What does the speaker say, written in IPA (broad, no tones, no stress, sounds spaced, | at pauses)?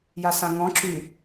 j a s ã ŋ ɔ̃ ǁ y